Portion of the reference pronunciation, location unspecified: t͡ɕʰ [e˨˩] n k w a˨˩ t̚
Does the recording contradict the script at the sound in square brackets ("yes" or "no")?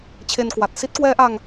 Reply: yes